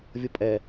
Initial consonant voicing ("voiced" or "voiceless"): voiced